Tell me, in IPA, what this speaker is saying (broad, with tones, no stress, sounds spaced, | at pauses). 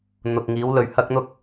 n̪ ʊ˨ k̚ ŋ iː˨˥ w l ɵ˨ ɥ h ɐ˥ k̚ n̪ ʊ˥ k̚